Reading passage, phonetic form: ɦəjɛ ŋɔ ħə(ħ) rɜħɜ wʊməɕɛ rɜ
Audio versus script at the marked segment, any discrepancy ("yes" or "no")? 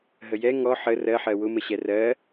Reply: yes